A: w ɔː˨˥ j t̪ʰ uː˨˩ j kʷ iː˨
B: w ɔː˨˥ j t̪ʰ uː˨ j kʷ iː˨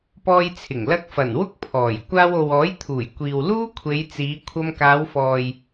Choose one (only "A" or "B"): A